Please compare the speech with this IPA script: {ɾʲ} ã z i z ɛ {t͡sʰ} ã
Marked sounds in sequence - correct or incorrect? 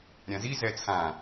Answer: correct, correct

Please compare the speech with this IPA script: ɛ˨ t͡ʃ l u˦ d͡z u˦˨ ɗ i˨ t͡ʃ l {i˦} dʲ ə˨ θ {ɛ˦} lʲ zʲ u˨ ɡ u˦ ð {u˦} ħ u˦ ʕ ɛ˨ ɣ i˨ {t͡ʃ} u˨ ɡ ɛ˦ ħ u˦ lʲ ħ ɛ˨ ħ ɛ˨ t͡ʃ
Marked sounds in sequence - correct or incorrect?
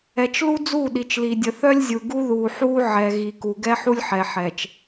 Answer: incorrect: i˨, incorrect: œ˦, incorrect: u˨, incorrect: k

